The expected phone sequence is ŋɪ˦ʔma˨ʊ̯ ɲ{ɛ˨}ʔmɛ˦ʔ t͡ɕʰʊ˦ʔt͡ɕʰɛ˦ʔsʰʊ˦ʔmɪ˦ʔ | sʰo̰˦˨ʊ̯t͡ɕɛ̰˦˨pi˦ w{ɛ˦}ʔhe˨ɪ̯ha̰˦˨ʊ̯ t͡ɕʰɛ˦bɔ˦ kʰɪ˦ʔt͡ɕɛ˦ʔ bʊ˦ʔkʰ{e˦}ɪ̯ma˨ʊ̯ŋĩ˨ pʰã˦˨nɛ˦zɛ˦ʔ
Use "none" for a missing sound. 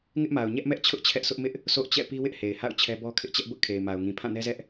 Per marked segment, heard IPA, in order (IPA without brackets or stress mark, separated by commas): ɛ˦, ɪ˦, e˨